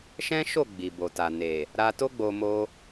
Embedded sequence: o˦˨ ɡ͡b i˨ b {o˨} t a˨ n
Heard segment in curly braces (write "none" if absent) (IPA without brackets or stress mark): o˨